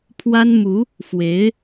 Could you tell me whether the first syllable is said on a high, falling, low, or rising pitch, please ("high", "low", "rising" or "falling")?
high